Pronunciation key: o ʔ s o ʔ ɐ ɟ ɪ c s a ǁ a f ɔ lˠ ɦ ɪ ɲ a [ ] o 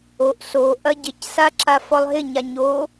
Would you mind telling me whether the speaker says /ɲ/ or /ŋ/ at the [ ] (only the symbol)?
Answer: ɲ